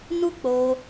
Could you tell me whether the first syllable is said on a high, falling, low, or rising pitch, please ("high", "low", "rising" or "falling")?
high